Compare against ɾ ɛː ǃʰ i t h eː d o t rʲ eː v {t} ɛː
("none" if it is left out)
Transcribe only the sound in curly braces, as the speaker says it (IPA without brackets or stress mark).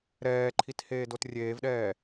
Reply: ɗ